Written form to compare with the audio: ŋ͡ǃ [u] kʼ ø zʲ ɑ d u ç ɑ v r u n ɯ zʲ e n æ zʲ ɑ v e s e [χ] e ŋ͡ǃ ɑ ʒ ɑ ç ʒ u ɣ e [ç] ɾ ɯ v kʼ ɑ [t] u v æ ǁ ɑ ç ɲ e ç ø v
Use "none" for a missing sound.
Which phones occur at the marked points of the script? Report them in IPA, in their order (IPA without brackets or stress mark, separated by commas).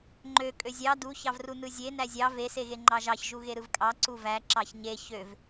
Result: ø, ɣ, none, ǀ